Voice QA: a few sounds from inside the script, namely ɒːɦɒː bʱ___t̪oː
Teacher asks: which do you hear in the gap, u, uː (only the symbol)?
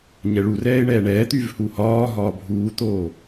uː